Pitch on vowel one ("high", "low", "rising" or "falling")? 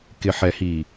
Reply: low